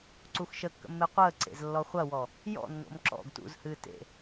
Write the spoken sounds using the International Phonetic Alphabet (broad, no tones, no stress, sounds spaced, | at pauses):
ǀ u x ʃ ə kː ə̰ mː e qʷ əː ǀ ḛ z lː ɔ χʷ ɐ w ɔ | j ɔ̰ nː o̰ m ǁ ɔ̰ ɡ t ṵ z h ɨː t ḛ